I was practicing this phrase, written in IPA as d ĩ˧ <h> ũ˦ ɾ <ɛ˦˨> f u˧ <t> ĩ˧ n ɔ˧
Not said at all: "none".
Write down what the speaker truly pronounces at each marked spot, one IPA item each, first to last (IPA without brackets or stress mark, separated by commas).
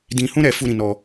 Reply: h, ɛ˧, ɾ